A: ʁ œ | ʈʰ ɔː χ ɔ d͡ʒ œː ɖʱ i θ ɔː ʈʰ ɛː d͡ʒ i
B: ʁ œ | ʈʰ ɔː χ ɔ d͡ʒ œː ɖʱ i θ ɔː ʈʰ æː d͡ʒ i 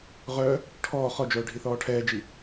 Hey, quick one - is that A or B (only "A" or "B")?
A